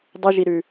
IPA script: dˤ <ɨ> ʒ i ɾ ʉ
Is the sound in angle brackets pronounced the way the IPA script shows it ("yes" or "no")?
yes